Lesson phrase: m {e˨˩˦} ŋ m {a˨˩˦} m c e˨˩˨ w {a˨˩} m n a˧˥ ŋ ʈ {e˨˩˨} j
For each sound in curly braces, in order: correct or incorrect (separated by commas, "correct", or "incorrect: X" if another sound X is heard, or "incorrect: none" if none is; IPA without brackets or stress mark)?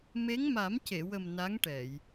incorrect: e˧˥, correct, incorrect: ə˨˩, incorrect: ɛ˨˩˨